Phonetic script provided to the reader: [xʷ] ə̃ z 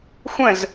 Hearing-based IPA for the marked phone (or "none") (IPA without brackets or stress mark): xʷ